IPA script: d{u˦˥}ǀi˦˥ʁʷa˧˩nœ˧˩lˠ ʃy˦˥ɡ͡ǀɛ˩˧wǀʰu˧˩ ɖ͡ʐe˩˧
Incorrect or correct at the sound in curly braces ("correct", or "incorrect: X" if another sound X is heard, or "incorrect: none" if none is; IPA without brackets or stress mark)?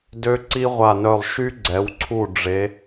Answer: incorrect: ø˦˥